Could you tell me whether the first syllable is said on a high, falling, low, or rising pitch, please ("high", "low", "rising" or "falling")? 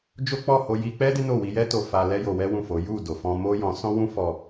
high